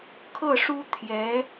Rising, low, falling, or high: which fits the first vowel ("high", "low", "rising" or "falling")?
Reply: falling